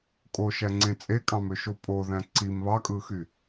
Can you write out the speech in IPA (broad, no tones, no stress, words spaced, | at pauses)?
kʼoʃæŋ͡ǀẽ t͡sʼekʼɑ̃møʃo pʼoðæ̃ ǀim βɑkʼɯxy